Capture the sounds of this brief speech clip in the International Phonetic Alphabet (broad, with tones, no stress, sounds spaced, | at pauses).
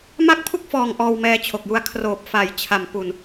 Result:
m a˥˩ k̚ pʰ u˥˩ k̚ f ɔː˨˩ ŋ ʔ ɔː˧ w m ɛː˧ t͡ɕʰ o˨˩ k̚ j u˧ a̯ kʰ r oː˨˩ p̚ f a˩˦ j t͡ɕʰ a˩˦ m p u˨˩ n